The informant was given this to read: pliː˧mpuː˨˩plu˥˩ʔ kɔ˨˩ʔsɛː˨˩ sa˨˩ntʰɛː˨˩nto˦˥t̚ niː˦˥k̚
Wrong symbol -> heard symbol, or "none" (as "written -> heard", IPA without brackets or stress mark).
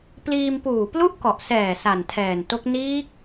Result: t̚ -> k̚